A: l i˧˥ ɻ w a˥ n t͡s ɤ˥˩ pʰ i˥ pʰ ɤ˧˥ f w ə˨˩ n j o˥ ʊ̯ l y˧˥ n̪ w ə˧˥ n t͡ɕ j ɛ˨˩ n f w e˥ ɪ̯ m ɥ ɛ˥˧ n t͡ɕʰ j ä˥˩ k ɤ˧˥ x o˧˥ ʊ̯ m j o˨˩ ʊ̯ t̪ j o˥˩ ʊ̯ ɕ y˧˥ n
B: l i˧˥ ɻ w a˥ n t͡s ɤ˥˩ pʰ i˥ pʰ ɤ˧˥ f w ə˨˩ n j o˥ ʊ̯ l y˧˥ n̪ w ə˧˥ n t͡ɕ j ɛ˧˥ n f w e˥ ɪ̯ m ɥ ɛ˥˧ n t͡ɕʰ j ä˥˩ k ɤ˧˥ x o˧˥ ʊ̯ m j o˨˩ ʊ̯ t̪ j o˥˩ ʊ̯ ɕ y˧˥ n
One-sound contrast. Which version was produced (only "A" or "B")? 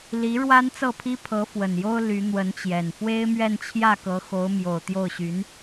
A